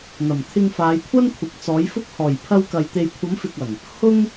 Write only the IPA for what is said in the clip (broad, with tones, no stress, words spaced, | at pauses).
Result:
n̪ɐ˨˩mt̪ʰɪ˧ŋfaː˨˧jkʷʰɐ˥n kʷʰɪ˨k̚t͡sɔː˨˥jfʊ˥k̚ hɔː˨˩j pʰɐ˧wkɐ˨j t̪e˨jkʷʰɐ˨˥m fɪ˨k̚ɐ˨˩ŋ | hʊ˥ŋ